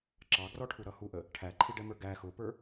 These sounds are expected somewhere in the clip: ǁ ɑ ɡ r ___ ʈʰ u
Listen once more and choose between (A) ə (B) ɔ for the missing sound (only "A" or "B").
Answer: B